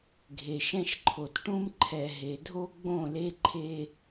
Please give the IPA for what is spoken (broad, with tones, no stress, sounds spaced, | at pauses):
ɡʱ e˨ ʃ ɛ̃˦ ʃ ǃʰ o˨ t ʈ ũ˦ m ǃʰ ɛ˨ ɦ e˨ dʱ o˦ ɡ͡b õ˥˨ l e˦ ǃʰ e˦